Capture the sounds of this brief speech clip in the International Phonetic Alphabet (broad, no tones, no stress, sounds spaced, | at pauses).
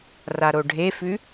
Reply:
r a ɾ o ɖʱ e f ʉ